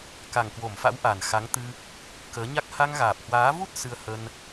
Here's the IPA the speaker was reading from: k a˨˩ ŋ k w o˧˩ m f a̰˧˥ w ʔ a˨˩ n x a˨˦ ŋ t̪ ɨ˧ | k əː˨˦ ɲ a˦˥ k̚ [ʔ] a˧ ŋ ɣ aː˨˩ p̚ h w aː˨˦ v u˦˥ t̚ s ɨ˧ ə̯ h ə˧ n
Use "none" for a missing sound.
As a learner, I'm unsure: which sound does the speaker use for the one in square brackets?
h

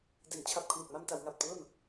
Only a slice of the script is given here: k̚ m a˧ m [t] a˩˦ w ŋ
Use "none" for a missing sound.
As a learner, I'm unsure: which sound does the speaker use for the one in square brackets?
t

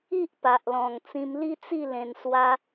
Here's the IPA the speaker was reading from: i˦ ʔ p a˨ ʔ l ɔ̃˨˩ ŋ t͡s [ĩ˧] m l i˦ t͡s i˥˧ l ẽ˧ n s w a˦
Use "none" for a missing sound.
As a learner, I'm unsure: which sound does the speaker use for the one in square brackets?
ĩ˧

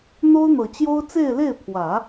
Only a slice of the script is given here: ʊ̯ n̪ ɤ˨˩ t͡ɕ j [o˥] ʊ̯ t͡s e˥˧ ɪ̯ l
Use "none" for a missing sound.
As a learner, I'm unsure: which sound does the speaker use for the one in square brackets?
o˥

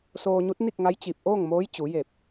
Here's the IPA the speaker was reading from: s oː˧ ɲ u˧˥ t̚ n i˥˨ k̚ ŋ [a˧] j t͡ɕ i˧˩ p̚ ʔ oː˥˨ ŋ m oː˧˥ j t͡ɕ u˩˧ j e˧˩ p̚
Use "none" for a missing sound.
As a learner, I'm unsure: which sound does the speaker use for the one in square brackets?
a˧˥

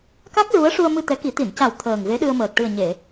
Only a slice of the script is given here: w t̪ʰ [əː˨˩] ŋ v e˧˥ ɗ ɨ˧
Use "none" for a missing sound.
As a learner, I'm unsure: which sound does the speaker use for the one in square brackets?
əː˨˩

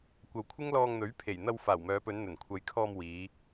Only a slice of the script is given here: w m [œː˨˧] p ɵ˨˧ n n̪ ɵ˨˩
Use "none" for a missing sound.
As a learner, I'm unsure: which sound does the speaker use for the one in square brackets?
œː˨˧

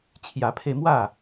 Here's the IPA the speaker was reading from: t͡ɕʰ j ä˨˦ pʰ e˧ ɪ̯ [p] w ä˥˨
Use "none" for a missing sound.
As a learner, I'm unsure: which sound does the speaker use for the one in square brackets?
m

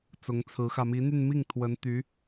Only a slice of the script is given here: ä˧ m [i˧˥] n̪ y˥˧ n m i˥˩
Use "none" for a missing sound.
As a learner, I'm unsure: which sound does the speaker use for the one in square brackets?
i˧˥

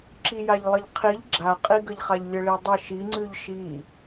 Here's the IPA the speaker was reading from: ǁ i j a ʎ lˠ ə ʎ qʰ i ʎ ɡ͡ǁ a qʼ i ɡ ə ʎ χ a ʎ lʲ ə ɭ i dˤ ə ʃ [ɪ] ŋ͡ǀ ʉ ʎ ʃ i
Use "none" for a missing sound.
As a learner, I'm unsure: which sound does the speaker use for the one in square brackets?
i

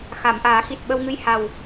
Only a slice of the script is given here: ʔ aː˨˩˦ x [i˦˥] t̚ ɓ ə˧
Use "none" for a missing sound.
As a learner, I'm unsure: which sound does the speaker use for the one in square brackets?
i˨˩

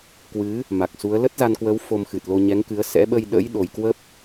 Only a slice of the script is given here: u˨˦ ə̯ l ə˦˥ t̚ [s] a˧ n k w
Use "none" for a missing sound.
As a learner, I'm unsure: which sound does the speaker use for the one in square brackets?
z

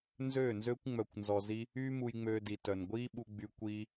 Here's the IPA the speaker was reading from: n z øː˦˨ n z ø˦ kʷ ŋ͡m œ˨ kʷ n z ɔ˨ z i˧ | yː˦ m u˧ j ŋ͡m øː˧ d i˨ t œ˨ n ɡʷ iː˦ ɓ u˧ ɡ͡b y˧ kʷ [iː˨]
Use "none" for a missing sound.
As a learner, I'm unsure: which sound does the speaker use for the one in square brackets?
iː˧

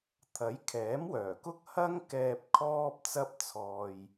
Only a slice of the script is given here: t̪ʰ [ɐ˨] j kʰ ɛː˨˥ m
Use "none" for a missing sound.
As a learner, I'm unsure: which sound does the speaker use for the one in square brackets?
ɐ˨˥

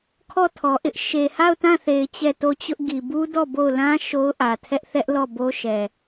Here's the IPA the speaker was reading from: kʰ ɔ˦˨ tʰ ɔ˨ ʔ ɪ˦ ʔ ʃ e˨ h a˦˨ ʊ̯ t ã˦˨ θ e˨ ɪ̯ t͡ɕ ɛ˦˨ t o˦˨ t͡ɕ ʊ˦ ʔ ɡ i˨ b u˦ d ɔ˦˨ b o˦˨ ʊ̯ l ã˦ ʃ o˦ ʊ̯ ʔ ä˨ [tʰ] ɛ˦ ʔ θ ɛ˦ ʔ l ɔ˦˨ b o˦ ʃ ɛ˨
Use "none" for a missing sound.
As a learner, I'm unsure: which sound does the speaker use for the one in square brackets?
tʰ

